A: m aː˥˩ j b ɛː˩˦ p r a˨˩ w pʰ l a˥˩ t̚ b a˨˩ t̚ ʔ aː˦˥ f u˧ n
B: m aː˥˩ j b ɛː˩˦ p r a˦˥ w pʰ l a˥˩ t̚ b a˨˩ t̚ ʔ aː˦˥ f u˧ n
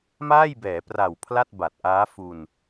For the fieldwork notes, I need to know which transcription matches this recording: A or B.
A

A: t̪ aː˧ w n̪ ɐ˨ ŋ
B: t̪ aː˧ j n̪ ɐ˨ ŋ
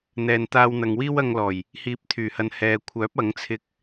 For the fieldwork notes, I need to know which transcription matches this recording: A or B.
A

